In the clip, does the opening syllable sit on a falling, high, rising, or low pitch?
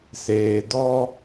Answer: low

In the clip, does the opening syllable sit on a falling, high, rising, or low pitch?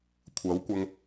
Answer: rising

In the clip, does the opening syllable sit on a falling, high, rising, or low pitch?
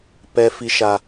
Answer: high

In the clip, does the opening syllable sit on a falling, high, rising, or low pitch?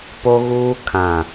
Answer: high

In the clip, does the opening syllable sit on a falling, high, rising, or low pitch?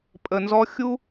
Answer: low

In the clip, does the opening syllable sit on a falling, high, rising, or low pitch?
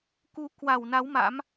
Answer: rising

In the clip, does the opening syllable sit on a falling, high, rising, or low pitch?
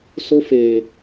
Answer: high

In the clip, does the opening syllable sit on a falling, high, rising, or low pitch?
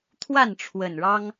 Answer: falling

